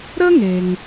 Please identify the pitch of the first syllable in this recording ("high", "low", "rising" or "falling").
high